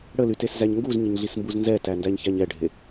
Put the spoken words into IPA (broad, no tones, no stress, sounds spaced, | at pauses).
ɽ ə l y t e s z æ ɲ ŋ ɡ u z ɲ ɪ ɲ ɮ i s m b u z n z ɛ t æ n d æ ɲ ç æ ɲ ɛ ɖʱ e